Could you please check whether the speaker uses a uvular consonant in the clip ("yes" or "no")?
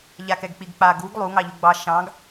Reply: no